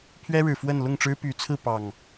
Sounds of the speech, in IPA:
pʰ ɥ ɛ˦ ɻ ɻ̩˨˩ f w ə˥˨ n l ʊ˥˨ ŋ ʈ͡ʂ ɻ̩˦ p y˨˦ t͡sʰ ɹ̩˥˨ p ɑ˨˩ ŋ

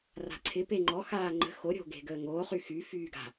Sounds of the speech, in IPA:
r a̤ ǀʰ ɪ p e ŋ͡ǃ ɔ x aː ŋ͡ǃ ə̤ x o ɾʲ o̤ ɡ e̤ ɡ əː ŋ oː χ y x y f yː ɡ a̤

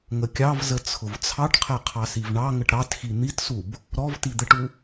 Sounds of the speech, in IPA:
ŋ ə kʲ ɑ v z ə t͡sʰ ʊ v t͡sʰ ɑ ʈ qʰ ɛ qʰ ɑ s i v ɳ ɑ ŋ ə ʈ ɾ ɑ t x i n̪ i t s u b | ɾ ɔ v t i d̪ ə ʈ u

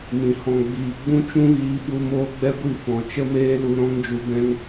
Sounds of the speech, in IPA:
m ĩ˨ h ɔ̃˨ ɡ͡b iː˨ ɡ͡b ũ˦ t͡ʃ ũ˦ ɣ iː˧ ɓ u˧ m oː˦ ɡ͡b ɛ˦ ɡʷ i˦˨ f ɔ̃˨ t͡ʃ ə˦ m eː˦ l u˧ ɾ ɔ̃˦ ŋ d͡ʒ u˧ b ɛ̃˦ ŋ

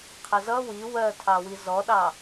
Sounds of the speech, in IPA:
qʰ ə z ʌ w i w ɜ tʰ ɑ w i z ɔ ɗ ɑ

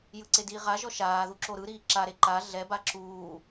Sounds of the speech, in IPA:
j ɯ ǀ e d iː ʁ a ʒ ɔ ʃ aː ð u ǁ o ɾ ɯ ɾ iː ǁ a ɾ e ǃ a ɮ ɛ b a ǁ uː

